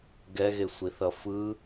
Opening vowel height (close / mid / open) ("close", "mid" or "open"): mid